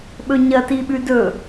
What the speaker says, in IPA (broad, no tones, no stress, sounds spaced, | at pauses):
ɓ ɵ ɲ ɐ t i ɓ ʉ d ɵ